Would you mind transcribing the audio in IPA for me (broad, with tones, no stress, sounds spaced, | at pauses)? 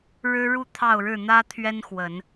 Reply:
ɻ ɻ̩˦ ɻ u˥˨ t̪ʰ ɑ˥˨ ʊ̯ ɻ ɻ̩˥˨ n̪ ä˦ t̪ʰ ɥ ɛ˦ n x w ə˨˦ n